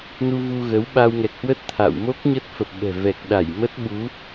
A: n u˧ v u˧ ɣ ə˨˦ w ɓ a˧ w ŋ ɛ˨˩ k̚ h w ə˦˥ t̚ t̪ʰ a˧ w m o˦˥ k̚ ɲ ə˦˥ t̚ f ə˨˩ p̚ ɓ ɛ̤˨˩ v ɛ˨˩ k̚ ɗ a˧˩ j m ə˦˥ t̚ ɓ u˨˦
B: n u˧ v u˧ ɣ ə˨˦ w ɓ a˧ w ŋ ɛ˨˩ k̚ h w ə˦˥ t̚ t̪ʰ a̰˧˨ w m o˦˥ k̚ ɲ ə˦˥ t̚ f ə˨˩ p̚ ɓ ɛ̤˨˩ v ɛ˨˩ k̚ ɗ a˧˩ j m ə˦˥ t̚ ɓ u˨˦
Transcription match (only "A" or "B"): B